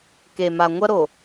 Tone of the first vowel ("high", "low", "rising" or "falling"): low